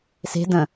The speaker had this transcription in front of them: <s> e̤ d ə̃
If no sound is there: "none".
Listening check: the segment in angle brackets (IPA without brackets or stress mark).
s